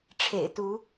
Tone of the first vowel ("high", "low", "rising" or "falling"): low